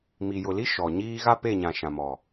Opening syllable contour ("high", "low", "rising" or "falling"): low